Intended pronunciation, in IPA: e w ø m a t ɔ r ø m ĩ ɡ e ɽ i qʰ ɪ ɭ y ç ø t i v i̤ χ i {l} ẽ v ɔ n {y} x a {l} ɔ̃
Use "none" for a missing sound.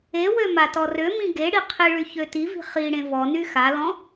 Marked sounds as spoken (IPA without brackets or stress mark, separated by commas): ɽ, y, l